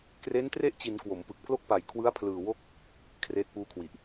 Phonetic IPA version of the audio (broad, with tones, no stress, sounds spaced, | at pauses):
k r e˦˥ n t r e˥˩ ʔ t͡ɕ i˩˦ n k w o˩˦ m p ɯ˨˩ k̚ pʰ l o˥˩ k̚ p a˨˩ j kʰ w ɯ˦˥ a̯ pʰ l ɯː˨˩ w o˥˩ k̚ | kʰ r eː˦˥ t̚ p uː˦˥ kʰ w i˨˩ ʔ